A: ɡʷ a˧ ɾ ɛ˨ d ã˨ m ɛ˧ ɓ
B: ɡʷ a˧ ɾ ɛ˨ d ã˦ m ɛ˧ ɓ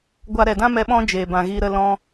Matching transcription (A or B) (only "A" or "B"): B